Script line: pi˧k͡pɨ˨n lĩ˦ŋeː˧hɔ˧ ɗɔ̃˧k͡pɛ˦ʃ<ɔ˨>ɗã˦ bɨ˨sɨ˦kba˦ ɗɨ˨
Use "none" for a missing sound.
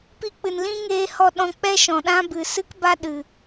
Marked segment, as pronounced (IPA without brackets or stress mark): ɔ̃˨